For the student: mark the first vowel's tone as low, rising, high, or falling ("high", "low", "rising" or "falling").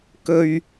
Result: low